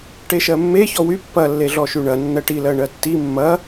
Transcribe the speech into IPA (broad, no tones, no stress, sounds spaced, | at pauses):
ʈ e ʃ ɜ mː e ç ɔ w y pː ɐ lː e ɮ ɔ ʃ y ɳ ɐ nː ɜ ʈ i l ɜ ɳ ɜ tː i mː ɐ